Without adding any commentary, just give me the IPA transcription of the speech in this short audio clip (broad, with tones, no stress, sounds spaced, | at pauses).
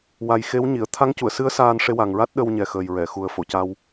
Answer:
w a˨˩ j x e˧˥ w ɲ i˨˩˨ ə̯ t̪ʰ a˧˥ ŋ c u˨˩˨ ə̯ s ɨ˧˥ ə̯ s aː˧ n ʂ e˧ w a˨˩ ŋ ɹ a˦˥ t̚ ɗ ə˧ w ɲ ɛ˨˩ x əː˨˩ j ɹ ɛ˨˩˨ x u˨˩ ə̯ f o˨˩˨ c a˧ w